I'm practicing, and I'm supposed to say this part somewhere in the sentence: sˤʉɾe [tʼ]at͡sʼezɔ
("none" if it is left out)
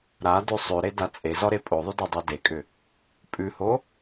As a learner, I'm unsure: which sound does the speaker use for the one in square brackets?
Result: d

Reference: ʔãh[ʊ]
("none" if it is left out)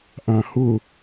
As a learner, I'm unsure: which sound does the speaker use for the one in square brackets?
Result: ʊ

